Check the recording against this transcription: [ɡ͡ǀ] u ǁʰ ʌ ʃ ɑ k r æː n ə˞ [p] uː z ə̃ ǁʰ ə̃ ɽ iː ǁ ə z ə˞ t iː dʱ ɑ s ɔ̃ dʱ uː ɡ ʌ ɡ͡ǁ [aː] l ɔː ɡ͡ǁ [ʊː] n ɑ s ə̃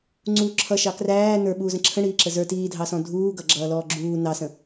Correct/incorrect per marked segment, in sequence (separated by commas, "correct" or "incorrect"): incorrect, incorrect, incorrect, incorrect